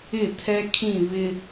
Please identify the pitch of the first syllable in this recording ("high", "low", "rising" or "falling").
falling